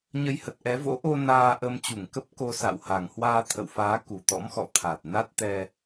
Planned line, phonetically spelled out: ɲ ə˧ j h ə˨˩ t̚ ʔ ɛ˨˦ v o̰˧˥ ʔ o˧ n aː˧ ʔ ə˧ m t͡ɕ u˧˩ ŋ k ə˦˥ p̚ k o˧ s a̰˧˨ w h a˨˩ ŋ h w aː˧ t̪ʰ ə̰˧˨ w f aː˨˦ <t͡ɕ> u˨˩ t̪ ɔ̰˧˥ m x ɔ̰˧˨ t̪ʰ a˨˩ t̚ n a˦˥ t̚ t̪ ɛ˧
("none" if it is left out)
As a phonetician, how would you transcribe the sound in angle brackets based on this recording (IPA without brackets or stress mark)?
k